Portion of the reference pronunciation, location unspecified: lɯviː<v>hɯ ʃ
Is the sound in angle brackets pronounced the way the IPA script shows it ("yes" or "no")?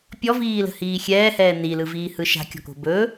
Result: no